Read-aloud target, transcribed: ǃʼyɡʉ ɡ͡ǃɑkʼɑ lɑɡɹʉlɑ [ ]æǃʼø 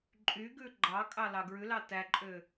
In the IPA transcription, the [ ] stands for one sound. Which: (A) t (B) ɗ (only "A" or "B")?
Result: A